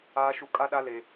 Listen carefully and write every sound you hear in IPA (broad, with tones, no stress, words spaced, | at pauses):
aː˦ʃu˦ kʼa˦ɗa˦ le˦